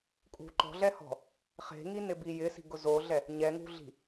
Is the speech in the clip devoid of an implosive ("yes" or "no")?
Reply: yes